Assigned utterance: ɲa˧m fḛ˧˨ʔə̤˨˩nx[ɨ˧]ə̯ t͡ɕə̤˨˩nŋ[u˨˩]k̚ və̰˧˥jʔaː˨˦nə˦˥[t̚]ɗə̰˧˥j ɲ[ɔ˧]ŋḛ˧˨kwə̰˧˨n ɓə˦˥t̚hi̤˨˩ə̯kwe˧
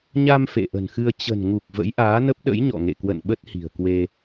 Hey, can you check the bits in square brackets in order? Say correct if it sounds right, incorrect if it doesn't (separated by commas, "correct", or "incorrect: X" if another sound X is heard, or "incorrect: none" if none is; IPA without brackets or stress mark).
correct, correct, incorrect: p̚, incorrect: ɔ̰˧˨